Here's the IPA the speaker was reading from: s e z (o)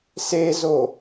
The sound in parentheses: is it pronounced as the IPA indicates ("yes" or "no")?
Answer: yes